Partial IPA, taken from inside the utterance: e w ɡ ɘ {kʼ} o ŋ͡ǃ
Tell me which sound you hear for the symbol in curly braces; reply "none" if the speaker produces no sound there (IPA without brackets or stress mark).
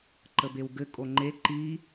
kʼ